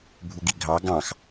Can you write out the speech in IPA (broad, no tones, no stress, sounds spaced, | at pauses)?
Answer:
bʱ u ɡ i ɡʱ ɑ ɡ ɑ̃ x